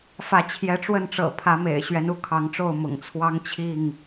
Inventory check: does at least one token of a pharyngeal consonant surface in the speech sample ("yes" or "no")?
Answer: no